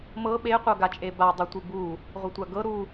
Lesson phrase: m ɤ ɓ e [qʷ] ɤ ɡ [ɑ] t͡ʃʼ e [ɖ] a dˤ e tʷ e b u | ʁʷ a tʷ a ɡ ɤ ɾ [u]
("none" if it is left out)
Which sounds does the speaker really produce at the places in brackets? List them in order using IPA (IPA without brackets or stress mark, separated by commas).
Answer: qʷ, a, b, u